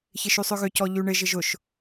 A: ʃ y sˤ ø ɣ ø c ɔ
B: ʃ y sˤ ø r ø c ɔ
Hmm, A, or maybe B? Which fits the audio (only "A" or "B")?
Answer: A